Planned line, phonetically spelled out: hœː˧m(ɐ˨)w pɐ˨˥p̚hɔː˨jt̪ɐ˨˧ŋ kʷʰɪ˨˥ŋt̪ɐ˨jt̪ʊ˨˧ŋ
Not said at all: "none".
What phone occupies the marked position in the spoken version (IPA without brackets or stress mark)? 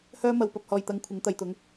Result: ɐ˨